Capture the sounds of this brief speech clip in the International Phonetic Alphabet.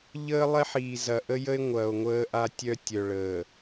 ʎəː˦lˠɛ˦ħiː˨ zɐ˨ ʔə˦jə˦e̯ŋʷɐː˨o̯ ŋʷəː˦ʔa˦ tʲœ˦ tʲœ˨ɭəː˨

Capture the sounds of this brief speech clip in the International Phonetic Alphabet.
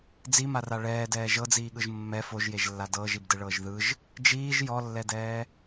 d͡zimara ɭɛːdɛː ʒɤd͡ziːɠɯʒ mːɛ foʒjeʒlːa dɤːʒibdɯɭɤːʒ ðɯʒ | d͡ʒiːʒ jɔlːɛdɛː

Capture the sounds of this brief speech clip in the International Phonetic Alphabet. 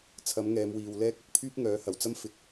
t͡sʰɐ˨˥mŋɛː˨˧mwiː˨w lɛː˧k̚ɵ˨˥t̚ pʰyː˥p̚ŋœː˨˥hɐ˨˩wt͡sɐ˥m fɪ˨k̚

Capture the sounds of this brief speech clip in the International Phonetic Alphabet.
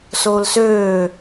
soːlsøː

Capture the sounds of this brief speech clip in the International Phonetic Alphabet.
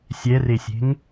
sʲɛresʲe̤ŋ

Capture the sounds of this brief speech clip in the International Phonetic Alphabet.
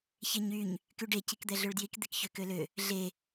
çeɲyɲ | kyɖe cikd̪ɛɮøɭdjik d̪ekçøkølø | ɮe

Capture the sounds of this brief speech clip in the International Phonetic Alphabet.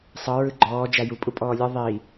sˤɤ ɹɯɡ͡ǃɔː d͡ʒaju pʼupʼɔːlʲɯ ðˤi

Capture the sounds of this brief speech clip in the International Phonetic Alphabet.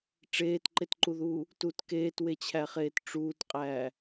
ʈ͡ʂeːtǃetǃuðuː | tut keːtwet͡ɕʰæχeːt ʈ͡ʂuːtqʼæː

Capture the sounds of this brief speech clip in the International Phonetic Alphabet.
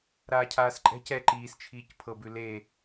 ɾaːcʰaːsǃʼɛ̤c ɛ ǃiːst͡ʃʰiːc pʰɤbʉ le

